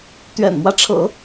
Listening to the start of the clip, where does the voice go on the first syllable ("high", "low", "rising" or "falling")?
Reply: low